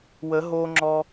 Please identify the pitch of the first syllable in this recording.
rising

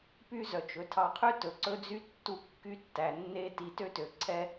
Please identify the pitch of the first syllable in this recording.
high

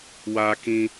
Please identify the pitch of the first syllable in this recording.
high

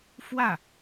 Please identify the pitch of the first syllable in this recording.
falling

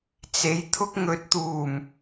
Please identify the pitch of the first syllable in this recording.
rising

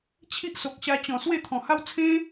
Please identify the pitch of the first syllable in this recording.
high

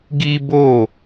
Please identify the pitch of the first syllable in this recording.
high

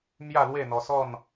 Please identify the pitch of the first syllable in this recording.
falling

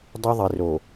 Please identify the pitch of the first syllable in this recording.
high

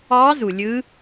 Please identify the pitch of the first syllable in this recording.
rising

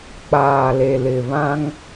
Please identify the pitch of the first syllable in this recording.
low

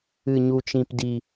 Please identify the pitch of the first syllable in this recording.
low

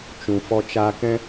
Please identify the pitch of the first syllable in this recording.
low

